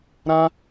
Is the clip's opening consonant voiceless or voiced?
voiced